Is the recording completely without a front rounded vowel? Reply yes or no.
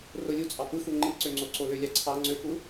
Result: no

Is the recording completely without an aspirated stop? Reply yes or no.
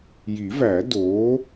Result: yes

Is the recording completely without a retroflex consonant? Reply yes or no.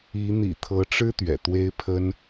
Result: no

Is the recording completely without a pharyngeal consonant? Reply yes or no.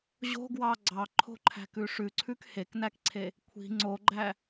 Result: yes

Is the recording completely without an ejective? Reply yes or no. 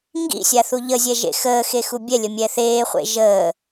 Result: yes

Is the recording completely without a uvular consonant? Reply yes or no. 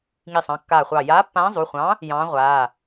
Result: no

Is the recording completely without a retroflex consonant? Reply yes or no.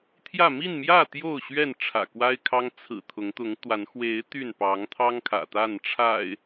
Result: no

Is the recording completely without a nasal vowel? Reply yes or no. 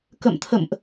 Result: yes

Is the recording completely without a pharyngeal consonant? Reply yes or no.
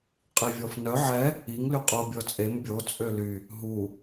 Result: no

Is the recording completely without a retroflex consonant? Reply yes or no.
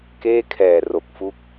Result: yes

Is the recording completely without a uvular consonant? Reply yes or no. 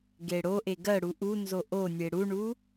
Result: yes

